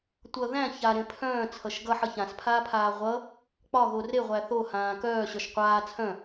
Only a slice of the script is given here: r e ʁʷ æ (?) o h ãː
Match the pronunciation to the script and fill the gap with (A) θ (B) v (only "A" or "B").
A